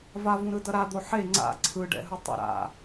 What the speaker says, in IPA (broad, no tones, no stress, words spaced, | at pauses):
vavũɾɯ dʌɾad̪o ħe ŋ͡ǀa̰ ǀʰɯɖɛ̰ɦɯ tˤṵɾa̰